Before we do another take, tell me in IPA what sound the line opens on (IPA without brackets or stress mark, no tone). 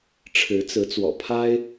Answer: ʈ͡ʂʰ